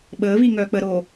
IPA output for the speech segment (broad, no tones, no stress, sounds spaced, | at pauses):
ɓ əː β iː ŋ œː k͡p ə ɾ o